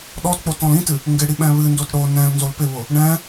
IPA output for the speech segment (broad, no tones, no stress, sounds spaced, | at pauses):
ɗ ɔ t k͡p o t ɔ̃ l ĩ t ɨ | ŋ ɡ ɪ ɽ i ɓ ɛ̃ β ɨ n d o t ɽ o n ɛ̃ l n z o l p ɪ β ʊ | ɳ ɛ̃